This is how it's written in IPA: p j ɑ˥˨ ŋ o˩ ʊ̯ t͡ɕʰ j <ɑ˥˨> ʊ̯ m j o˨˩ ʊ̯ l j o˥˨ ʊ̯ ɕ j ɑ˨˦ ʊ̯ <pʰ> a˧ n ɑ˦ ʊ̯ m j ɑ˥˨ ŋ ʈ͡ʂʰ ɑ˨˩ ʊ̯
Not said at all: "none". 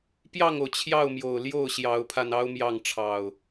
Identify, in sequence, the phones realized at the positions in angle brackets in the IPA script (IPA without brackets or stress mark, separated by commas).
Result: ɑ˥˨, pʰ